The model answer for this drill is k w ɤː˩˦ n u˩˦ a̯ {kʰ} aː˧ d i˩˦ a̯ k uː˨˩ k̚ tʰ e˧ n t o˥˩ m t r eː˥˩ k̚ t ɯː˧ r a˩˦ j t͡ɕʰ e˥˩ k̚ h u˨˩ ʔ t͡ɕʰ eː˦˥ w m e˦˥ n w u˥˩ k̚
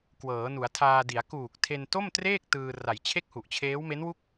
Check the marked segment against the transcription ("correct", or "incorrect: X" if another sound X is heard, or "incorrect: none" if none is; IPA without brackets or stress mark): incorrect: tʰ